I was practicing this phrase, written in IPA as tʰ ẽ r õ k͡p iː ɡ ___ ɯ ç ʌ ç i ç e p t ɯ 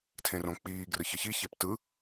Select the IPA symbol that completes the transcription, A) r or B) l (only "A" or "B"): A